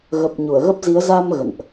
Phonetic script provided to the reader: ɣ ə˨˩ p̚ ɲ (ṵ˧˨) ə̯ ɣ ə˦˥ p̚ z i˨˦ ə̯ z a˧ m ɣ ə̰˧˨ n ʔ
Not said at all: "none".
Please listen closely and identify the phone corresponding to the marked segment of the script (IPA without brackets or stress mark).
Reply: u˧˩